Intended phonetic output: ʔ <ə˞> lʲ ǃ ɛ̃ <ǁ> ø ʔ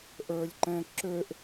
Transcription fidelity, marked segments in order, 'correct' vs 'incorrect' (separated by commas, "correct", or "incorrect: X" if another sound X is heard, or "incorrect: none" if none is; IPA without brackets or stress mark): correct, correct